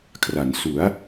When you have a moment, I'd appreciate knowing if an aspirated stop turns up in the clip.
yes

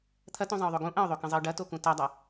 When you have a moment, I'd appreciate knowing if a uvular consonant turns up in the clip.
no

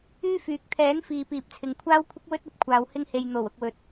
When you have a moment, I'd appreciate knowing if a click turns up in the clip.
no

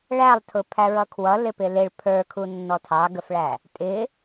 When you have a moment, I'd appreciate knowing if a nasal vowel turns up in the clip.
no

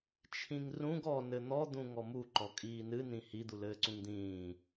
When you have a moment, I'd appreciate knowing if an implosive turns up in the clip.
no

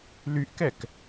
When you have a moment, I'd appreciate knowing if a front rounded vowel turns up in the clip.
yes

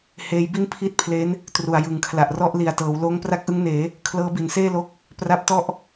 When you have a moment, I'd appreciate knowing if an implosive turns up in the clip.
no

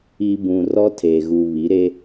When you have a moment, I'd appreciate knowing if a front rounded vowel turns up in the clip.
no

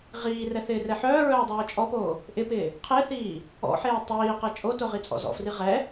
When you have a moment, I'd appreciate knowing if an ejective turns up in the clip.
yes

